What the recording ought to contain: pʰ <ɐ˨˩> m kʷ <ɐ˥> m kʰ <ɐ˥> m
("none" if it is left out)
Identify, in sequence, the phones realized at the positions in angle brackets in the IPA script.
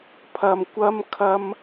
ɐ˧, ɐ˥, ɐ˥

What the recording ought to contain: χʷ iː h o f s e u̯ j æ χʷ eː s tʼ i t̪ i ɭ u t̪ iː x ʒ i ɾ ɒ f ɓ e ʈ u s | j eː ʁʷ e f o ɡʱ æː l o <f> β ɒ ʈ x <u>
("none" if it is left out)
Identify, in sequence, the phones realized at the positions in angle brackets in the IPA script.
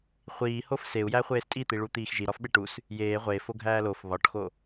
f, o

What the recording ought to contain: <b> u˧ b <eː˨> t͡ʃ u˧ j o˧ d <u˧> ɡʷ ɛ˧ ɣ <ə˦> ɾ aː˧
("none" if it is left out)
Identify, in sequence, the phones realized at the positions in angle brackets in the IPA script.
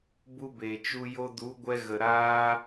b, e˨, u˨˦, ə˨

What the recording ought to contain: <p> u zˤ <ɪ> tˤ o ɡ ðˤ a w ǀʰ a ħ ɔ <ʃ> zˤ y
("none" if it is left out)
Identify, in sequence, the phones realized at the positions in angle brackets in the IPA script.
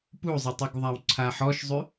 p, ɪ, ʃ

